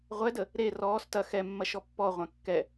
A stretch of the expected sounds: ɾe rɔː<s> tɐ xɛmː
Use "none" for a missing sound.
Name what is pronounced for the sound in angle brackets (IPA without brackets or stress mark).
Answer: s